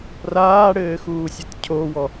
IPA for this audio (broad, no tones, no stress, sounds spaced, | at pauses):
r aː ɽ ɘː x uː sʲ ɘ t cʰ o w ɔ